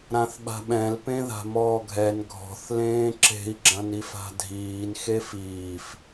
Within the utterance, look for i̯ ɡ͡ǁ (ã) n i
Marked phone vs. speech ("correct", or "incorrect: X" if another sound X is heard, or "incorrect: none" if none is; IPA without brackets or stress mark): incorrect: ɐ̃